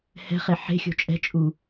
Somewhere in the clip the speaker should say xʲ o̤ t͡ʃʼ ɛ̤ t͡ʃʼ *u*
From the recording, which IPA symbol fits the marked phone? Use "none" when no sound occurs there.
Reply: u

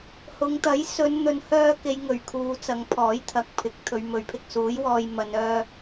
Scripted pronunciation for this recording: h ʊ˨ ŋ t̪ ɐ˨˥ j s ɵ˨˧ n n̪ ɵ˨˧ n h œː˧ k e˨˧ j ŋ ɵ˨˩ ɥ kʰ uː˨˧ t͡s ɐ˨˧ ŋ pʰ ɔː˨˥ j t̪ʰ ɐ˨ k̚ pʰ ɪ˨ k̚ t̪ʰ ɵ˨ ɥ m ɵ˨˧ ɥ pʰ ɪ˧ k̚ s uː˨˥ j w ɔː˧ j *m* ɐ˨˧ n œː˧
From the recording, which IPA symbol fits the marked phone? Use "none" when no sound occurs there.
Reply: m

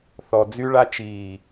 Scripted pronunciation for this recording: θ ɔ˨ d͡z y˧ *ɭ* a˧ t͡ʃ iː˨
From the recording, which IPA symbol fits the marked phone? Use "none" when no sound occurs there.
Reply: ɭ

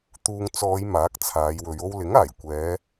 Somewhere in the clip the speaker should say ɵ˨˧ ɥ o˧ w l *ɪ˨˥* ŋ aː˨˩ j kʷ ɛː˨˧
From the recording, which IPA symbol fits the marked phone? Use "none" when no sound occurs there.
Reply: ɪ˨˥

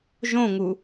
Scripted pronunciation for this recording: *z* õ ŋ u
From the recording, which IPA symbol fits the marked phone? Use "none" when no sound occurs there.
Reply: ʒ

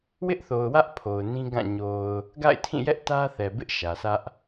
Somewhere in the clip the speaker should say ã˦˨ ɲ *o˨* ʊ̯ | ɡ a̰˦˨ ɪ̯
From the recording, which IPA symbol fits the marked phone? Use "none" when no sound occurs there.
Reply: o˨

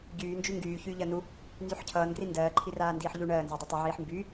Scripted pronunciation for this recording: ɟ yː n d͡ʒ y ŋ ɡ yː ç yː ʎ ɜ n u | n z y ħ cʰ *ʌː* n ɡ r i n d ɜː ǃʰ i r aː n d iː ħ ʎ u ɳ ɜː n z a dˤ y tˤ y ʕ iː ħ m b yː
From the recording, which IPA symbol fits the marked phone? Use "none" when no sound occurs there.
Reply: ʌː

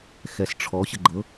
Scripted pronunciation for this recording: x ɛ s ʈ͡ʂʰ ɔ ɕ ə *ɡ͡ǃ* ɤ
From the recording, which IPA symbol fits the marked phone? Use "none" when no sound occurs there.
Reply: ɡ͡ǃ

